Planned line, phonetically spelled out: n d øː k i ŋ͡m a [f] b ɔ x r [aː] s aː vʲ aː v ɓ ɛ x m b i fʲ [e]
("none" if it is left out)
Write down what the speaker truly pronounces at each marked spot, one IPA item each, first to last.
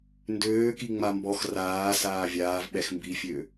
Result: m, aː, ø

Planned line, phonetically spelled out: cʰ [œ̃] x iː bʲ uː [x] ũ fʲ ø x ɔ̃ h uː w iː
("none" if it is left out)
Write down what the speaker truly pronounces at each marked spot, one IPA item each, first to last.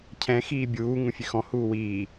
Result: ɛ̃, ŋ

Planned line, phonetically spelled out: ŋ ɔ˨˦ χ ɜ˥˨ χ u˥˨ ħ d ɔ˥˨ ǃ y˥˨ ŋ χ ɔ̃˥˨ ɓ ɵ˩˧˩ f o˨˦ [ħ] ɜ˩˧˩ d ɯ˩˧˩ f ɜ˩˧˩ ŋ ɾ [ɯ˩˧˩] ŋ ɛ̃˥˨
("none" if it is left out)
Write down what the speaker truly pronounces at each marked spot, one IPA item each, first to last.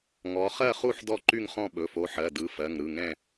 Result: ħ, ɯ˩˧˩

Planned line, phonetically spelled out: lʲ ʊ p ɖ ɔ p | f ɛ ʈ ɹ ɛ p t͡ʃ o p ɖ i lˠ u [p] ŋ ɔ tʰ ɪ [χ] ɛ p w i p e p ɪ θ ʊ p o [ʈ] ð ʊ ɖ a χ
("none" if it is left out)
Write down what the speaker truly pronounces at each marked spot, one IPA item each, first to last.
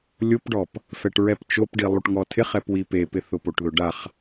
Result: ʈ, χ, ʈ

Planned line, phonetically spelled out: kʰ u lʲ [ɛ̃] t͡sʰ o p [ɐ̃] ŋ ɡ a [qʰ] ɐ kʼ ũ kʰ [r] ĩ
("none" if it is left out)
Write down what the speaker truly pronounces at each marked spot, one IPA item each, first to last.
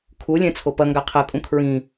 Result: ɛ̃, ɐ, qʰ, ɹ

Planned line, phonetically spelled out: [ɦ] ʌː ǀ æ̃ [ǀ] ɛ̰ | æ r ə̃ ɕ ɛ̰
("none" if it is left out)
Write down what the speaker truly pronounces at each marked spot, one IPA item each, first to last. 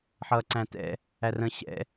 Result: ħ, t

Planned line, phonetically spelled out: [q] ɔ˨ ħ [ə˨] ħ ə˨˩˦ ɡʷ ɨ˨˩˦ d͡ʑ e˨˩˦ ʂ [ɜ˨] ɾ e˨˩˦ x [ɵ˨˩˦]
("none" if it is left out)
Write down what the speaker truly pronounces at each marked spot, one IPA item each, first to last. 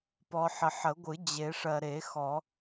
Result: p, ə˨, ɜ˨, ɔ˨˩˦

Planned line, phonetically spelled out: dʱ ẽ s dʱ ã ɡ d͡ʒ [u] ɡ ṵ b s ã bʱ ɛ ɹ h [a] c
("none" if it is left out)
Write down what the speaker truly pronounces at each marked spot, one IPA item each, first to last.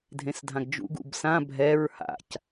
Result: ṵ, a̰

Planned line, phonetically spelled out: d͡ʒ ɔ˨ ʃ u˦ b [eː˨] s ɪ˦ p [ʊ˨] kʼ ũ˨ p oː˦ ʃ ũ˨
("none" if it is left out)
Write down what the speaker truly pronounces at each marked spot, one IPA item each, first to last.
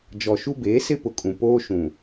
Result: eː˨˦, ʊ˨

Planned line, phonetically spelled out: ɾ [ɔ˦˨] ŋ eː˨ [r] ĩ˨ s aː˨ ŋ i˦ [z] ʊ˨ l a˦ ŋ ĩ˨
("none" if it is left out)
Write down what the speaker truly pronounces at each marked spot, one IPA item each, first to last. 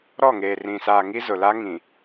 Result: ɔ˦˨, r, z

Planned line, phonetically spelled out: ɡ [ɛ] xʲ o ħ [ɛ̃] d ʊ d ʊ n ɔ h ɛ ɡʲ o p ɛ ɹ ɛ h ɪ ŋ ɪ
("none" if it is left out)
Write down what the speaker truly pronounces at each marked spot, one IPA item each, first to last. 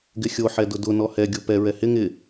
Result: ɪ, ɛ

